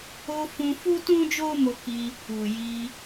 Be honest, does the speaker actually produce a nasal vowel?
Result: yes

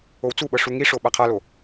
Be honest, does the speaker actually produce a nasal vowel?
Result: no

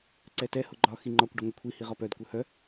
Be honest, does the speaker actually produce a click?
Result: yes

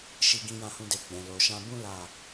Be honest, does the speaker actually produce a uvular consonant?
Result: no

